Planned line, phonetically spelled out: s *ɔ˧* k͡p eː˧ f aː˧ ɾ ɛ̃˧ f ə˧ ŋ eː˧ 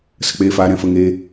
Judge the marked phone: incorrect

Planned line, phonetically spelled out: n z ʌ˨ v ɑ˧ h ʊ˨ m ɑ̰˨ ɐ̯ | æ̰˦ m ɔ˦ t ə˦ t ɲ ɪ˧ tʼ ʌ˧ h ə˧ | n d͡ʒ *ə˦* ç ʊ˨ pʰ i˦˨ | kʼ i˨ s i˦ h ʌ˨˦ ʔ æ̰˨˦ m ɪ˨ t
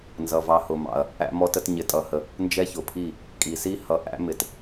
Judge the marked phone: incorrect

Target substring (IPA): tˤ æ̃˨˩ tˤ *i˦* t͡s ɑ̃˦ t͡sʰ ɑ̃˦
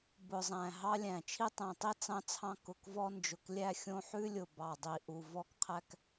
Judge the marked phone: correct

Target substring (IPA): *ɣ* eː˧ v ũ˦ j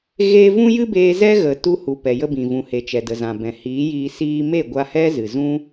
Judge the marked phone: correct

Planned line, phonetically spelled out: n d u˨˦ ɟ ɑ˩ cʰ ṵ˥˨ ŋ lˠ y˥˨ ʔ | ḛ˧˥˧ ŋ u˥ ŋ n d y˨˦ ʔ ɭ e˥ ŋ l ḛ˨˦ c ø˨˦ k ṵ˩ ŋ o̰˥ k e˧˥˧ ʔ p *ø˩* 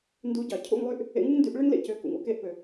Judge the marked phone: correct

